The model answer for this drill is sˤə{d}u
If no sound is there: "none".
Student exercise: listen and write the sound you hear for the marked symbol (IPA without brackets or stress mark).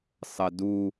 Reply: d